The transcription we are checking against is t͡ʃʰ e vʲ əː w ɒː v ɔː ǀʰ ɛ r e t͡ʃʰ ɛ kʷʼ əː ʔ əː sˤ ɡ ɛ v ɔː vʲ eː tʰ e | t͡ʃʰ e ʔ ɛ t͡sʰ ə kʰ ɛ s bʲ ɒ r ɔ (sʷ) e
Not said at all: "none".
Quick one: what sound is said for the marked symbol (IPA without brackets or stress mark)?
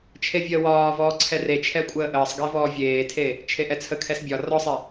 sˤ